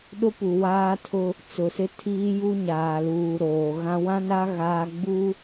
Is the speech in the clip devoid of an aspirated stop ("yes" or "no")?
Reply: no